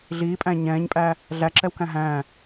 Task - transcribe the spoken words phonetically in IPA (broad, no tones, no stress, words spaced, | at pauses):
ɮiːpʼæ̃ ɲɛ̃ːɲpʼæ | ɮæǁɛwkæ̃ ɦæ̃